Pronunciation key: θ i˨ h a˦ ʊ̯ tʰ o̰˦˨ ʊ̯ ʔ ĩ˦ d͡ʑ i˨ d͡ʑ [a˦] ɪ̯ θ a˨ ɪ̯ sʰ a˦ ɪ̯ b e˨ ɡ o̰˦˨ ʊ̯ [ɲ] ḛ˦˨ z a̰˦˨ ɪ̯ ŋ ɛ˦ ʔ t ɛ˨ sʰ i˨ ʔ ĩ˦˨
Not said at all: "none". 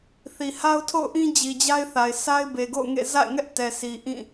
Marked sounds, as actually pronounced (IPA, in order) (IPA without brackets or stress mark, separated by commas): a˦, ŋ